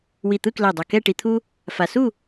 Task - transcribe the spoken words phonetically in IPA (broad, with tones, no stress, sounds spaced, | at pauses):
w i˧˩ t̪ ɯ˥˧ k l ɛ˧˩ dˤ ʌ˧˩ k ɛ˥˧ ʈ i˧ t̪ʰ u˥ | f a˧ s u˥˧